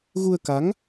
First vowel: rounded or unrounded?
rounded